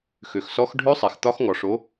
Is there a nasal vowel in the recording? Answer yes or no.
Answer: no